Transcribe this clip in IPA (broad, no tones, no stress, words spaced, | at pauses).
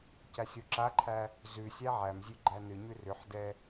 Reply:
cæsʲoǁaǃʰæ | zʉ sʲæʕæmzʲʉ ɡ͡ǃænɨɲʉ rʏħdɛ